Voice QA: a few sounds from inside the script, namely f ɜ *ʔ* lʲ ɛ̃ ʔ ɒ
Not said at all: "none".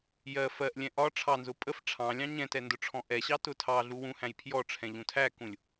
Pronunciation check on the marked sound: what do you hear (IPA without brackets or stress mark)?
ʔ